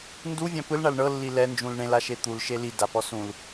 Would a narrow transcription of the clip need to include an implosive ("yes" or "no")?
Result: no